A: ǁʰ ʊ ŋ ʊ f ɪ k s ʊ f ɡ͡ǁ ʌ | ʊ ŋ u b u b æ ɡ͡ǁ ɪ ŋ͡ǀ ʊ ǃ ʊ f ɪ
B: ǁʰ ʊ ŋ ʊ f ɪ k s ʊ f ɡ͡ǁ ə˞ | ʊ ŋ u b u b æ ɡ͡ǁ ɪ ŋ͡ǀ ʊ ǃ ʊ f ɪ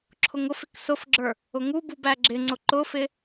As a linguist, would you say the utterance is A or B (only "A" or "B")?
B